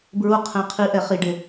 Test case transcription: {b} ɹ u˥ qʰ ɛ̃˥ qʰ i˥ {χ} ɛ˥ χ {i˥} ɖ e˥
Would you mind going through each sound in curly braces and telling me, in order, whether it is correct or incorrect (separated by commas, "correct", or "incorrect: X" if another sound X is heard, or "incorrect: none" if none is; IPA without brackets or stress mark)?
correct, incorrect: ʔ, correct